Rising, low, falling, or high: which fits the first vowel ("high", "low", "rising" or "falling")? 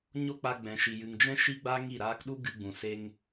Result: high